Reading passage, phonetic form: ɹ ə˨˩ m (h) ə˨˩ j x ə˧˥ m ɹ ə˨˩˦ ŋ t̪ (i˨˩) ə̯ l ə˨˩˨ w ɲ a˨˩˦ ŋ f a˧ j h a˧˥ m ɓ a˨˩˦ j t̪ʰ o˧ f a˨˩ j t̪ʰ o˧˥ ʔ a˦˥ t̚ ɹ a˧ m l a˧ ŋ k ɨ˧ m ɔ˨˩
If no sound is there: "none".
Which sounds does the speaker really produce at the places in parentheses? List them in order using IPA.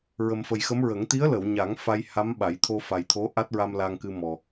f, i˧˥

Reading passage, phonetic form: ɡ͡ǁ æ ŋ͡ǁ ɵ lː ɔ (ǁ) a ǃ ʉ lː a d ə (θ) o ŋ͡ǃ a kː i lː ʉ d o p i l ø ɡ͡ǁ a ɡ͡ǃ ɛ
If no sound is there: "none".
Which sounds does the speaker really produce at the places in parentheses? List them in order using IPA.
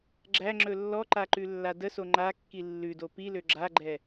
ǃ, s

